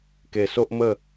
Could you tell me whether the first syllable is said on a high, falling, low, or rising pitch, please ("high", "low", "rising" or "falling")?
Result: low